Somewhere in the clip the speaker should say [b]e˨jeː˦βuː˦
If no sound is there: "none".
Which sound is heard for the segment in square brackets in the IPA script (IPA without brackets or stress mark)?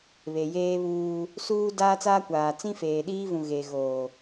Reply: β